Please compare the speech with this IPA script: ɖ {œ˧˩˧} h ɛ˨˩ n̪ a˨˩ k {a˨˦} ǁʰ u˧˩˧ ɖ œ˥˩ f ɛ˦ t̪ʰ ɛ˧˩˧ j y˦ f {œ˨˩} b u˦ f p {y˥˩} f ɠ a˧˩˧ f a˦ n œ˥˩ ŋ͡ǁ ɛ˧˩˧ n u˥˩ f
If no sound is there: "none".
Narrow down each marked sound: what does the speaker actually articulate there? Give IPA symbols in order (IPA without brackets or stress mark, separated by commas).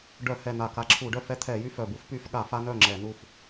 œ˧˩˧, a˨˦, œ˨˩, y˨˦